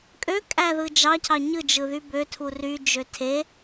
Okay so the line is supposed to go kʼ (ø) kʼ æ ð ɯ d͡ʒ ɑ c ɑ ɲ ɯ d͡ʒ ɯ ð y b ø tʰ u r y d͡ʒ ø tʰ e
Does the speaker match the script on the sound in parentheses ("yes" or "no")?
yes